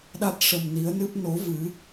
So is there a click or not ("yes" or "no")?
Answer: no